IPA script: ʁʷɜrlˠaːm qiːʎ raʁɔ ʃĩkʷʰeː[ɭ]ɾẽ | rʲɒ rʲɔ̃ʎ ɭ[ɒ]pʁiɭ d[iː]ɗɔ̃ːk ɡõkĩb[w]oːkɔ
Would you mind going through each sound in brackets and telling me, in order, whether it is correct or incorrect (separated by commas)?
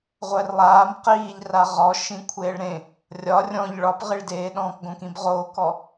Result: correct, correct, incorrect, incorrect